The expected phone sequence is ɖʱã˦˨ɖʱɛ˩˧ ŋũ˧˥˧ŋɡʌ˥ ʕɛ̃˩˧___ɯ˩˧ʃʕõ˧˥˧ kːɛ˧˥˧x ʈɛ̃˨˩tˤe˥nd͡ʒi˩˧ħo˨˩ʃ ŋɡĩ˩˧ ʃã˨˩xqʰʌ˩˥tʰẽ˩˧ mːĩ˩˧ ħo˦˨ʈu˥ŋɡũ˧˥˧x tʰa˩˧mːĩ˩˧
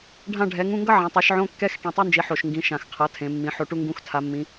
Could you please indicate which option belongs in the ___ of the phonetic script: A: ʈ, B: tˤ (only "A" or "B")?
B